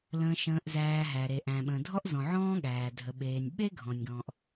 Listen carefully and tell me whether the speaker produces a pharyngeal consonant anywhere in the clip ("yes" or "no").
yes